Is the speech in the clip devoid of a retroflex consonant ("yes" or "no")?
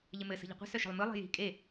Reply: yes